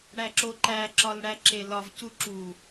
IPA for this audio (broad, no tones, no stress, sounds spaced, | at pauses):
ɽ æ ǁ o ǃ æ ǁ ɒ l ɽ æ ǁ e l ɒ v c u ǁ u